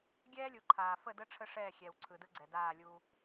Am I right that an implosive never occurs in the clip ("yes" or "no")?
yes